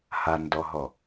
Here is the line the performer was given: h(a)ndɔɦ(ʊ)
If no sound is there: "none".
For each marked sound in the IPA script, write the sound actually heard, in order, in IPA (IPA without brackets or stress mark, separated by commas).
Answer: a, ɔ